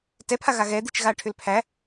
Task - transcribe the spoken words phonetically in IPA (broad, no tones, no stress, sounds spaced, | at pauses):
t ɛ pʰ a ɣ a ɣ ɛ d̪ i t͡ʃ ɣ a ʈʰ ʏ l pʰ æ